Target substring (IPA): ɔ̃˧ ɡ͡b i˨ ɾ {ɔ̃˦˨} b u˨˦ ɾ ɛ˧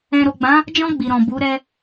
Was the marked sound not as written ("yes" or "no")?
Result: yes